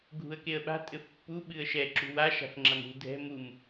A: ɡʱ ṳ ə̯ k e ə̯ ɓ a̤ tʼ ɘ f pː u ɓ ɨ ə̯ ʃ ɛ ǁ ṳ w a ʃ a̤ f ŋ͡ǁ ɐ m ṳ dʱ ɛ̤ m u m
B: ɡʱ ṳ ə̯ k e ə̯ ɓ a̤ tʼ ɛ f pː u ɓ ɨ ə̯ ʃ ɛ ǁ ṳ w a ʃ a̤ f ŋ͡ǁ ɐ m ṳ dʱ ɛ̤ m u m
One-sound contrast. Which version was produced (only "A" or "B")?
A